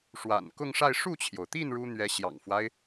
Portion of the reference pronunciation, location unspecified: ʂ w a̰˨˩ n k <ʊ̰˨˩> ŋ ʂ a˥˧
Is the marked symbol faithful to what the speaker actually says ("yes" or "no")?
no